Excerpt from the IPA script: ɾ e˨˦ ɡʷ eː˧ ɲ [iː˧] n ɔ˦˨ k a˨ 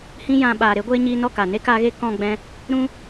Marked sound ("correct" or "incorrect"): correct